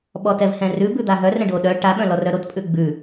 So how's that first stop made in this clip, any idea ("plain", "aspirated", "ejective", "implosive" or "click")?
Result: implosive